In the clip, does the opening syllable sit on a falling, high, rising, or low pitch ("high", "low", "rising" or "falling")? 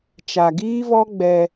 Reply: low